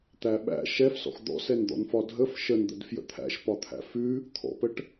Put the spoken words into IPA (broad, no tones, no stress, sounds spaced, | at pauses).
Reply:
t̪ æ ɓ æ̰ ʃ ɛ f s ɔ̰ x d̪ ɔ̰ s ɛ n d̪ ɔ̰ n f ɒ dʱ ə f ʃ ə n d̪ ə̰ d f j ə̰ t̪ʰ æ̰ ʃ p ɒ t̪ʰ æ̰ f ʉ | t̪ʰ ɔ̰ p ə ʈ